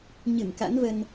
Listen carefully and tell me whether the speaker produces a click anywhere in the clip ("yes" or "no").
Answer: no